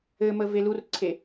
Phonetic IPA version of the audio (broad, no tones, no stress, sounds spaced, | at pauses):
ɘ m ə v e l u r ǀʰ e